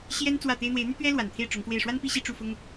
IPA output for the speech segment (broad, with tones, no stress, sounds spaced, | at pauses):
ɕ j ɛ˥ n t͡s w ä˥˩ t̪ e˥ ɪ̯ n̪ w e˧˥ ɪ̯ n̪ y˥ t̪ ɥ ɛ˥ l w a˨˩ n t̪ʰ e˥˩ ɪ̯ ʈ͡ʂ ʊ˧˥ ŋ f w e˥˩ ɪ̯ ʂ w a˥ n p i˥˧ ɕ i˥˧ ʈ͡ʂ u˥˩ f ʊ˥ ŋ